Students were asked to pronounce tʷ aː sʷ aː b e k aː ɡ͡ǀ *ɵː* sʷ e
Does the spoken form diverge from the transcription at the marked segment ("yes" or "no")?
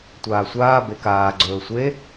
no